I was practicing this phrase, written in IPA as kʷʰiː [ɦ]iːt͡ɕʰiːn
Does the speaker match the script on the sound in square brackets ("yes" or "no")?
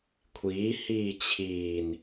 no